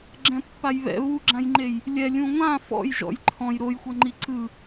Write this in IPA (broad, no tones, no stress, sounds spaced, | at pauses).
ɡ͡ǁ ɛ̃ pː a j β ɛ̰ β u ɡ͡ǁ ã j ŋ͡ǃ e j | lʲ ɛ lʲ ũ ŋʷ ã f ɔ̰ j ʒ ɔ̰ j ǃʰ ɔ̃ j ɾ o j xʷ ɤ ŋ͡ǃ i ǀ ɯ